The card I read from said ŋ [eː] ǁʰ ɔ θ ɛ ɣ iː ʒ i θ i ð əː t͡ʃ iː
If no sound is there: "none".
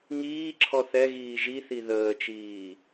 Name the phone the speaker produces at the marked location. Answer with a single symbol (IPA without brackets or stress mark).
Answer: iː